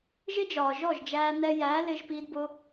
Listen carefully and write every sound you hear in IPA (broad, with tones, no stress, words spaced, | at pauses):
ʒɪ˦d͡ʒɒː˨ ʒɔ˦˨ʒd͡ʒæː˧ nɛ˧jæː˨˦ lɪ˧ʒpi˧dbʊ˧